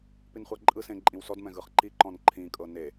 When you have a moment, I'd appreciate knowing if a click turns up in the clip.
yes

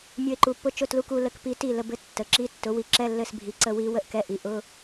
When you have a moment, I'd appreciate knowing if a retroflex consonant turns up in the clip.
no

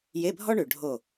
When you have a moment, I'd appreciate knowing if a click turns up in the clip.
no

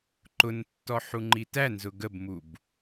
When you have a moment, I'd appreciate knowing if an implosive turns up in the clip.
no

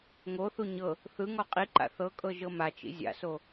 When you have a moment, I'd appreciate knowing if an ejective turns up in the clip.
yes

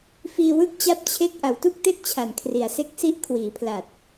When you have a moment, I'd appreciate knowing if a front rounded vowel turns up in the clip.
no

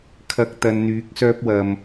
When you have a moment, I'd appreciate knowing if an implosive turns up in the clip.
no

